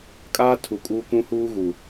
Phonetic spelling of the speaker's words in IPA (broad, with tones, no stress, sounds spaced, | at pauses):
kʼ aː˦ tʰ u˨ kʼ uː˦ k ũ˦ h uː˦ ɣ u˨